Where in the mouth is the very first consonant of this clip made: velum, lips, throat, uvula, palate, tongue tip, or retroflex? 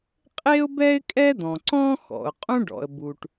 uvula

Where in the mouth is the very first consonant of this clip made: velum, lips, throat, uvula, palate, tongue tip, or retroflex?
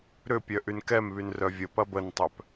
tongue tip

